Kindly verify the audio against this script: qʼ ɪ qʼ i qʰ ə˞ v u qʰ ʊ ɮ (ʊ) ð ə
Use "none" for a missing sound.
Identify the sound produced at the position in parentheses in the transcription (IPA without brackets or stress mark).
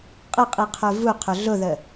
ʊ